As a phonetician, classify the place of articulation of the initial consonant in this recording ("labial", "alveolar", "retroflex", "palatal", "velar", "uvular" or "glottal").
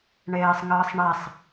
retroflex